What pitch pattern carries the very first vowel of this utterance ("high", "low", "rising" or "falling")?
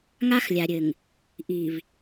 high